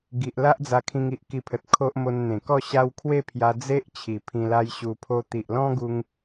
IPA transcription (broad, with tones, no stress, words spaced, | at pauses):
ɡi˨ʔ la˦ʔd͡za˧ kʰĩ˧ŋi˨ʔki˧pʰə˨t̚ kʰo˦ʔ mo˧nn̪ẽ˨˩kɔ˥˧ɕa˦w kʰwe˥˧pʰja˧ d͡ze˦ʔ t͡ɕʰi˨˩pʰĩ˧la˦jɕu˧ pʰo˧t̪i˨ʔlɔ̃˦ɡu˧ŋ